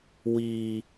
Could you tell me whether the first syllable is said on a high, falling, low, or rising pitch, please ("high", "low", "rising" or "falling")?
low